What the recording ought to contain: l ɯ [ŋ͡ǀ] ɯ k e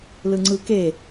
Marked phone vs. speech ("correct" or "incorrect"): correct